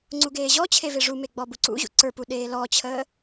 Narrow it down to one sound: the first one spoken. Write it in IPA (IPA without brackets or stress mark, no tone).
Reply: ŋ͡ǀ